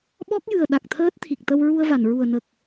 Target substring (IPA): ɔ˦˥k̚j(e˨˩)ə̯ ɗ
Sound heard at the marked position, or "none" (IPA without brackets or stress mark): ɨ˨˩